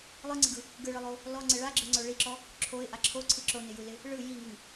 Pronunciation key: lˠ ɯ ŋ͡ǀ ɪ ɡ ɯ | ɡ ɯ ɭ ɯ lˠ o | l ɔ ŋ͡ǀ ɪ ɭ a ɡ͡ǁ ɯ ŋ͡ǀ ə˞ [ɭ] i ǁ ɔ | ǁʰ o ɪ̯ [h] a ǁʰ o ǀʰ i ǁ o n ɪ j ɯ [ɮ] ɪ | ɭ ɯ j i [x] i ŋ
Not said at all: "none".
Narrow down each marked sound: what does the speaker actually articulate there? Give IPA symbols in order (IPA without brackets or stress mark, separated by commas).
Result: ɭ, ʔ, l, ŋ